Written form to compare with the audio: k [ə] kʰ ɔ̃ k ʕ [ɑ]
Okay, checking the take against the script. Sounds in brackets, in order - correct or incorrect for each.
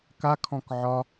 incorrect: a, incorrect: ɒ

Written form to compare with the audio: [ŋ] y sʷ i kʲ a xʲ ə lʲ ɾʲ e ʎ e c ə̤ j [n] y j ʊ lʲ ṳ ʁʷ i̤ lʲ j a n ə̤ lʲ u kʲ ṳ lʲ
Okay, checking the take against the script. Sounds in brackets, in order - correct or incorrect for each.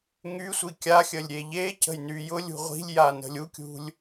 correct, correct

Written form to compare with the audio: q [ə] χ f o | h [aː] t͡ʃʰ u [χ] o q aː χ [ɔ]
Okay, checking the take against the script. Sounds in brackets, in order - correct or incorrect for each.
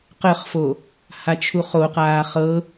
correct, incorrect: a, correct, incorrect: ɤ

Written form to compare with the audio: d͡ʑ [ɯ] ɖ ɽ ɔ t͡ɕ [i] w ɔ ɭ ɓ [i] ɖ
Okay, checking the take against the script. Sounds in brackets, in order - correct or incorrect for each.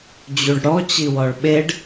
incorrect: u, correct, incorrect: e

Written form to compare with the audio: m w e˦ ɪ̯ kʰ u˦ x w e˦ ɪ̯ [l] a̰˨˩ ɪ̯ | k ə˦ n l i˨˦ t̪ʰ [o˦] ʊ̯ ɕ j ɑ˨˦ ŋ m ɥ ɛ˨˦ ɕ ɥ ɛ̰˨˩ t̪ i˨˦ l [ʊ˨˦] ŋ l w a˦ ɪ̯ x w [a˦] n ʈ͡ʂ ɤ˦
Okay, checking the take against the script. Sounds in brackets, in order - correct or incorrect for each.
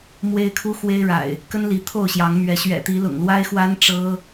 incorrect: ɻ, incorrect: o˥˨, incorrect: ʊ̰˨˩, correct

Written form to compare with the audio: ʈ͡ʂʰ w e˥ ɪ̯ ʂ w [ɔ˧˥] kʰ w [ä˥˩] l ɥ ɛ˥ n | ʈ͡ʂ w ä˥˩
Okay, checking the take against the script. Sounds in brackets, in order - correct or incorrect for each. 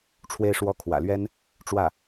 incorrect: ɔ˥, incorrect: ä̰˨˩

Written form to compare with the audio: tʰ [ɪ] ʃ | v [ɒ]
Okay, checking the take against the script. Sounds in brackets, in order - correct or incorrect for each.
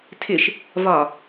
correct, correct

